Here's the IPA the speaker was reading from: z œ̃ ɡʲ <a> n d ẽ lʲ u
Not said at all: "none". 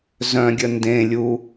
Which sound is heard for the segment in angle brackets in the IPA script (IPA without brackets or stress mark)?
ə